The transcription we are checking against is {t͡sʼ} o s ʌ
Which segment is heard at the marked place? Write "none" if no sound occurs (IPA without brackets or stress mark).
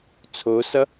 t͡sʰ